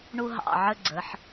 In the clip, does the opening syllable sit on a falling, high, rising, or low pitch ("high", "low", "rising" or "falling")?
high